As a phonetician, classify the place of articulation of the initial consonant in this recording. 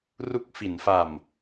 alveolar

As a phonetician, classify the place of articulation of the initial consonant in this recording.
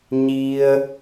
palatal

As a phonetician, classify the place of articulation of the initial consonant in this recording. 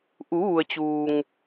glottal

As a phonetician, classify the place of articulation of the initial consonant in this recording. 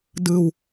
alveolar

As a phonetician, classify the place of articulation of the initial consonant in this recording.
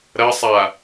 alveolar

